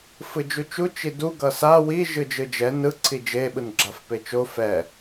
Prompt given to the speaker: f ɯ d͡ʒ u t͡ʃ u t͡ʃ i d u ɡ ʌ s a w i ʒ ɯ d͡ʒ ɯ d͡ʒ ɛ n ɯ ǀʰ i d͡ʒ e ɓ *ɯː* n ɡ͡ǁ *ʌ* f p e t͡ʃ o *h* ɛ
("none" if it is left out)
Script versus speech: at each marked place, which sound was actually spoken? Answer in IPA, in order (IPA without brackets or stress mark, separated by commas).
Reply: ɯ, a, f